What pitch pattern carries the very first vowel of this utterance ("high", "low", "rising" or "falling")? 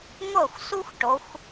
falling